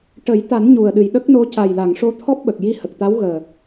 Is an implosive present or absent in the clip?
present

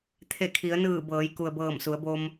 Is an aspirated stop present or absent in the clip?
present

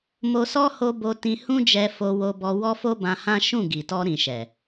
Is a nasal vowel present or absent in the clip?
present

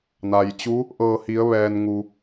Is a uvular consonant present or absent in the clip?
absent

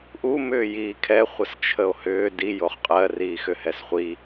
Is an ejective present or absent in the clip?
present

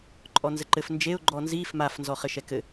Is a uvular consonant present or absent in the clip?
present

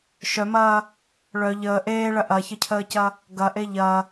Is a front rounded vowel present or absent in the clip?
present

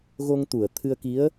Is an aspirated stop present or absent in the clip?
present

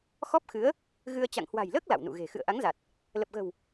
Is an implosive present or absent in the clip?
absent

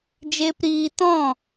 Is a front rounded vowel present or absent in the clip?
absent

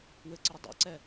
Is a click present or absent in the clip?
present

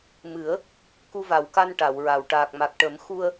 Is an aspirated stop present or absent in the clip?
absent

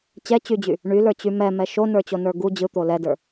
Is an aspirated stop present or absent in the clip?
absent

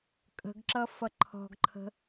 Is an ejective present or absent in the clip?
present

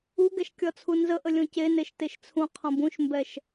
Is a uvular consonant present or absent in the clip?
present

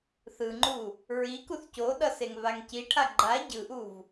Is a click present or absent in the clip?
present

